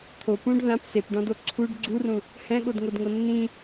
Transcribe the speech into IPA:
t̪ʰ o p ũ ɖ ð ã p s e p ɖ ɔ̃ d o ǀʰ u ɖ ɡ͡ǀ u r ũ | h ɛ̃ ɠ o d ŋ o d ŋ ɤ nː ĩ

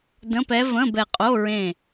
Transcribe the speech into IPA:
d ə̃˧˥˧ p ɛ˧˥ v ə̃˧˥˧ b ɛ˧˩ qʼ o˧˥˧ ɹ ẽ˧˩

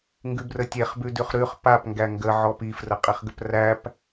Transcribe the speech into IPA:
ŋ ɡ ʉ b r ə tʲ e χ b ʉ d ʉ χ ɾ ʉ χ p a p ŋ ɡ æ ŋ ɡ ə ʕ ɔ p i f r ə qʼ i χ ɡ ə p r æ p

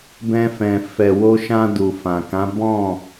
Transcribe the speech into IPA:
b ɛ̃˧ f ɛ̃˨ f ɛ˨ w o˧ ʃ ã˧ d u˨ f ã˨ k ã˨˦ b ɔ̃˦˨

